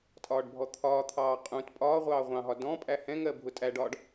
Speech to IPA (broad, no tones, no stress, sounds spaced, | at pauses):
tʼ ɒː ɖ bʱ ɔ t̪ʰ ɒː t̪ʰ ɑː qʼ ũ t pʼ ɒː ʁʷ ɑː ʁʷ ɑ̃ ɦ ɒ d ɔ̃ pʼ æ h ɛ̃ ŋ ɜ bʱ ʊ tʼ æ ɖ ɒː ɖ